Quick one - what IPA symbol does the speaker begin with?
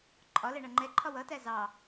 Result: ǃʼ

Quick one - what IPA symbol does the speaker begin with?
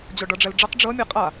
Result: d͡ʑ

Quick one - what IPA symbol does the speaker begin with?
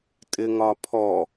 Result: tʼ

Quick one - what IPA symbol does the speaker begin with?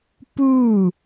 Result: p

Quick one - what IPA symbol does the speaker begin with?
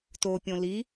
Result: t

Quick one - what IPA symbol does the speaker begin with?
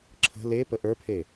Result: ǁʰ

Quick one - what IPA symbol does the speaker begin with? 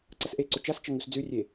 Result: ǀ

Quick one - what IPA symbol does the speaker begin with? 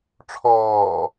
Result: ʈ͡ʂʰ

